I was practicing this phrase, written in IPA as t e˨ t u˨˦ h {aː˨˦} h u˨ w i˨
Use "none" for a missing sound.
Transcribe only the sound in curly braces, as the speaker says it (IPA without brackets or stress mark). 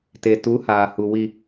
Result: aː˨